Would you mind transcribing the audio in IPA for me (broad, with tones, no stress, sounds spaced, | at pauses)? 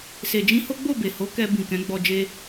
s e˨ d͡ʒ ĩ˧ h o˦ ɡ͡b o˦˨ b e˨ h o˨˦ k ɛ˧ b ĩ˨ k ɛ̃˨˦ ɡ͡b ɔ˧ d͡ʒ e˦